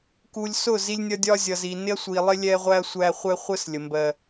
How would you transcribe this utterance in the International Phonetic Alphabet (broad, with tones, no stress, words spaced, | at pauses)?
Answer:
ku˨lʲsʊ˦˨ zi˦lʲnʲʌ˦ dʲɒ˦zʲʌ˨zi˨ nɪ˦ɐ̯sʷi˨lˠɪ˦ lʲɛ˦ ʁʷæ˦ɐ̯sʷæ˦χʷɛ˦ χʷə˦s lʲə˨mbɜ˦